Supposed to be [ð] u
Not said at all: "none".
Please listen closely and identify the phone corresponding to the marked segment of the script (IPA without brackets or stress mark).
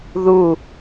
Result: ð